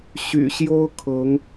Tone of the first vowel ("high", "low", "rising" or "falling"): low